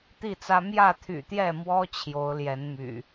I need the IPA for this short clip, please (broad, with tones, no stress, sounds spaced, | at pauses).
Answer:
t̪ i˥˨ t͡s ä˦ m j ä˥˨ t̪ʰ y̰˨˩ t̪ j ɛ˥˨ m w ɔ˦ t͡ɕʰ j o˨˦ ʊ̯ l j ɛ˨˦ n m y̰˨˩